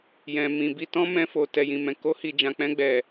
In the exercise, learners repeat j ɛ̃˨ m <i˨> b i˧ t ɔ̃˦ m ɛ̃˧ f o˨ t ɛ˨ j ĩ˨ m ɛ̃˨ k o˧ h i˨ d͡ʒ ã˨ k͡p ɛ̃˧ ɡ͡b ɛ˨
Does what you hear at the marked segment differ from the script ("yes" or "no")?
yes